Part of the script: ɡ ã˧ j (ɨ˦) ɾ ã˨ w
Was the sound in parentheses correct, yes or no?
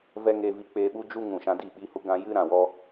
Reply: yes